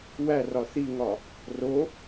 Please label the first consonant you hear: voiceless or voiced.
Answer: voiced